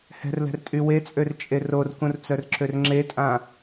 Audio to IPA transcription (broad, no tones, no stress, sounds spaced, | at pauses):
h ɛ̤ r l ɛ̤ r tʼ y w e t͡sʼ ø r t͡ʃʼ e r o r k ũ r t͡s œ r ǁ ø r ŋ͡ǁ e tʼ ã